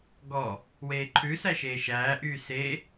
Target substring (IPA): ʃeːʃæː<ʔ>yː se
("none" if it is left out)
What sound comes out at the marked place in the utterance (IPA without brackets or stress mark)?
ʔ